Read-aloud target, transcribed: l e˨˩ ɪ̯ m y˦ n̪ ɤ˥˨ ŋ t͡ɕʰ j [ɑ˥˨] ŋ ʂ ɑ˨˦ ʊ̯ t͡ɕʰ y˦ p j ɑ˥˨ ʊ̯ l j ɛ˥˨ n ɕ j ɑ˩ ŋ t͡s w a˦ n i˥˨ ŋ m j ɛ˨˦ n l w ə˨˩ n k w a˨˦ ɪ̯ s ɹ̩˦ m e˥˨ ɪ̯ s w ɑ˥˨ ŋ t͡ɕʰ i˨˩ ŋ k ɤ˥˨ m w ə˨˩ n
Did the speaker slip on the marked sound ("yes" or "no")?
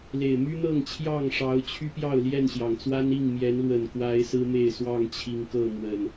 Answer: no